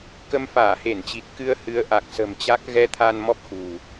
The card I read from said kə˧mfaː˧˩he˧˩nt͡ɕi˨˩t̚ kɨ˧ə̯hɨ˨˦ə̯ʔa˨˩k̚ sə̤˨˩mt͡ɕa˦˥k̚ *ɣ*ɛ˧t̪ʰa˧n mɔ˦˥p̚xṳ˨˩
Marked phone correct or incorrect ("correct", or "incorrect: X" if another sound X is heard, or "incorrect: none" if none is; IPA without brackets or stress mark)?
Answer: correct